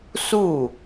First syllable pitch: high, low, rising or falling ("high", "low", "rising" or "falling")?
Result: falling